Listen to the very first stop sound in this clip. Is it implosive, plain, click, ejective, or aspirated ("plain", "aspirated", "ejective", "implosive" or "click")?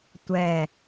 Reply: plain